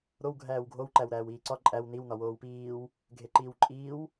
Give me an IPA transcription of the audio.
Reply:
ɾ o w ɡʱ æː w ɡʱ o w ǃ æ w ɾ æː w iː ǀ ɒ ǃʼ æ w n i w n ɒ w oː w p iː w | ɡʱ e ǃ iː w ǃʼ iː w

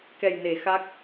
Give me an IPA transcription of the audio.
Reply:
k ɛ˨˩ j n e˨˩˨ x a˦˥ k̚

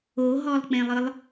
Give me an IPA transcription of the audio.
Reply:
o ɦ ɔ lˠ k͡p ẽ lˠ ɯ lˠ

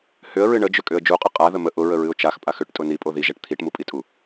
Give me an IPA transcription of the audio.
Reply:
h ʏ ə̯ ɹ ɨ ɳ ə d͡ʒ ʏ kʼ ʏ ə̯ d͡ʒ u qʼ ɨ qʼ a ð ə m ə ʔ ʊ ɹ ə ɹ ɨ ʊ̯ t͡ʃ a x pʼ a x ʏ ʈ tʼ ʊ n i pʼ o ð i ʒ ɛ ʈ t̪ʰ i ʈ m u pʼ i tʼ u

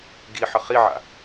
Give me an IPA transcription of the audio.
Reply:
ɡ i ħ ə χ i ʕ a̰

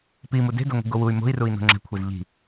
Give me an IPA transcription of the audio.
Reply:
p i m u d e̤ d o ŋʷ i̤ ɡ o w u y̯ m o̤ i̯ r u i̯ n o̤ ŋ͡ǁ ɛ̤ kʷʰ e z ʎ i̤

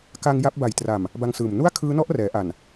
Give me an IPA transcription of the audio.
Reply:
k a˧ ŋ j a˦˥ p̚ b a˨˩ j t r a˨˩ m | b a˧ ŋ s ɯː˨˩ m n u˥˩ a̯ kʰ ɯː˦˥ n ɔ˦˥ ʔ r ɛː˩˦ ʔ a˨˩ n

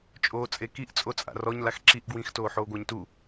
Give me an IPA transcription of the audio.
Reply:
t͡ʃʼ oː t͡sʼ e k i ʔ t͡sʼ o t͡sʼ a̰ r ɔ ɲ l a x ǁ i ʔ ɡ w ĩ x t oː ħ oː ɡʷ a ɲ t u

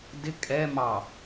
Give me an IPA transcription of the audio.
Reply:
d ɪ kʼ ɛ m ɑ

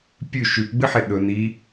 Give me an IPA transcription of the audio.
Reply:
pʲ ʉ ʃ ʉ p ɡ͡b ɨ ħ e ɗ ɵ n i

